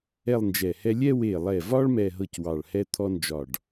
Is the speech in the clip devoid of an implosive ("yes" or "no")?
yes